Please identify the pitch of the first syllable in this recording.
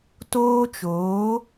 high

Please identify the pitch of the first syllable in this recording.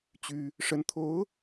high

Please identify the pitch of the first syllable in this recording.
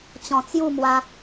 low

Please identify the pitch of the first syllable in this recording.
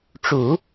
low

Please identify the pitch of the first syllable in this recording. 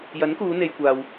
rising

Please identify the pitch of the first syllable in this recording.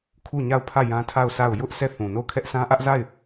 falling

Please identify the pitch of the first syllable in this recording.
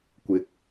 rising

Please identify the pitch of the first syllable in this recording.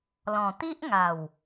low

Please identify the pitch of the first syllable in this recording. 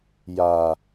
low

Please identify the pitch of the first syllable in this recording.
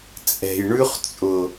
low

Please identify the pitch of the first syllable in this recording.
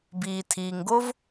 low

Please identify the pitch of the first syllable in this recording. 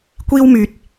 high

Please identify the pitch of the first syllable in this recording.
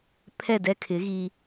falling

